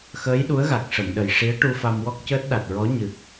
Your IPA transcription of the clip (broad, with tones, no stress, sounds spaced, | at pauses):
x əː˧˥ j ɗ u˧˥ ə̯ ɣ a˨˩ k̚ ʂ ə˨˩˨ m ɗ ə˨˩ j ʂ i˧˥ ə̯ ʈ u˧ f a˧ m w ɔ˦˥ k̚ c əː˦˥ t̚ ɗ a˨˩ t̚ ɹ ɔ˧˥ ɲ ɨ˨˩ k̚